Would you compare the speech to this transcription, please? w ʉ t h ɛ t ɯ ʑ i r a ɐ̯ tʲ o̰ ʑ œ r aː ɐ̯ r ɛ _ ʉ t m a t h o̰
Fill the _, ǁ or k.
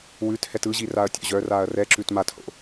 ǁ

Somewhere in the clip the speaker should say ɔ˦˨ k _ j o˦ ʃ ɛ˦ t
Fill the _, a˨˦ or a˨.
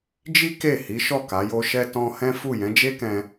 a˨˦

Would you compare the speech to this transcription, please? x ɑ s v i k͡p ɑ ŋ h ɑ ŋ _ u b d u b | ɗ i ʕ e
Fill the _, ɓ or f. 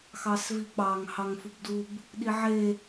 f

